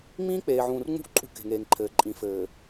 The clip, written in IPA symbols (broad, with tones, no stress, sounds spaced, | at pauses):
ŋ͡m ĩː˦ k͡p eː˨ ʕ ũː˨ r ŋ͡m ṳ˦ ʔ ǃʼ ṳ˦ k e̤˨ ŋ eː˨ ŋ ǃʰ ɘː˨ ǃʼ ĩ˨ f ɘː˨